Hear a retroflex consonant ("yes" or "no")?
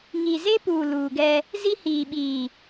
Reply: no